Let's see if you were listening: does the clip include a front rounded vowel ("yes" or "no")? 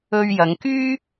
yes